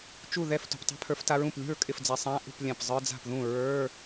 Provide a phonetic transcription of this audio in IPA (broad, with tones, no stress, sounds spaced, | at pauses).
t͡ʃ u˥˩ ð ɛ˥˩ f t ṳ˨˩ p tˤ ɛ̤˧˥˧ pʰ ə˞˨˦ f t a˨˦ ɹ ũ˨˩ p lʲ ṳ˥˩ ɹ kʼ ɪ˥˩ f d͡z ɛ˨˦ sˤ ã˧˥˧ ʔ ṳ˥˩ p lʲ ã˨˩ p zˤ ə˞˧˥˧ d͡z a̤˥˩ p ð ũ˥˩ ɹ ə˞˧˥˧